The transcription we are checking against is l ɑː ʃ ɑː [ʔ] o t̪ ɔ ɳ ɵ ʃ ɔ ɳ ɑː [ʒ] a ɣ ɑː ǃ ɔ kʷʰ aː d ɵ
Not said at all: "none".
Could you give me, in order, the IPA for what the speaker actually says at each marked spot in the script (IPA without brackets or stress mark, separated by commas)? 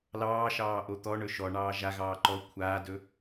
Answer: ʔ, ʒ